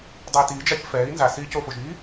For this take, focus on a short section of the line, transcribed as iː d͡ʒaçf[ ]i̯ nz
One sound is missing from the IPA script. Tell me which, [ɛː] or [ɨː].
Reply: ɛː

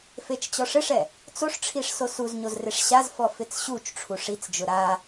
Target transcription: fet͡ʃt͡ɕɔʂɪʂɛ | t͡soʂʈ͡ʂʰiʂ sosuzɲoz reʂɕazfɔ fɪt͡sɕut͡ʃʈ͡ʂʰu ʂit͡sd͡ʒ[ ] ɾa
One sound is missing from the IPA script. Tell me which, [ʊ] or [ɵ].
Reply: ʊ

